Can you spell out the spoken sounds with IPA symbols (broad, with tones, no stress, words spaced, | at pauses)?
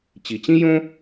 t͡ɕi˩t͡ɕĩ˥jõ˥